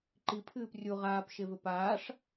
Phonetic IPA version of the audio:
ǃipʰɨːp rʲu ʁaːpʃevɘ paːʂ

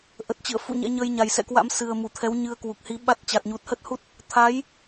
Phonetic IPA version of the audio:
ʔə˨˩t̚t͡ɕɨ̰˧˨ə̯fṵ˧˨ ɲɛ̰˧˥ɲəː˧j ɲa˨˩jsɛ̰˧˨kwa̰˧˥m sɨ˨˩ə̯mu˧˩t̪ʰɛ˨˦wɲɨ˨˦ə̯ kwu˨˩k̚hi˨˦ ɓa˦˥t̚ t͡ɕa˨˩t̚ɲu˨˩t̚hə˦˥t̚hu˦˥t̚ | t̪ʰa˨˦j

